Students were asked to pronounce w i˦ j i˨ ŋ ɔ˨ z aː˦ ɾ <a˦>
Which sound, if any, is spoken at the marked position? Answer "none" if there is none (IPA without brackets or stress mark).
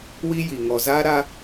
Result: a˦